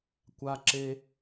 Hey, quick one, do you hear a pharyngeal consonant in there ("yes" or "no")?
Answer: no